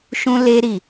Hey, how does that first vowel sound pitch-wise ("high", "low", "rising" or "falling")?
high